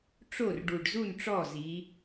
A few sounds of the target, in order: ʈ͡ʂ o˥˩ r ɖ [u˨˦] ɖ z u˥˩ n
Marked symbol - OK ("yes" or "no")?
no